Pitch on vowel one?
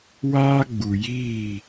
high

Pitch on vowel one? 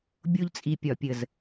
high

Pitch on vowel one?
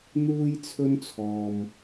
high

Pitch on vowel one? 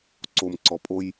low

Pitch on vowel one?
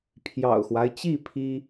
low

